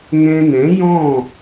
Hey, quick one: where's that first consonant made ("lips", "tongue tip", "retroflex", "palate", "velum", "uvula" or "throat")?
velum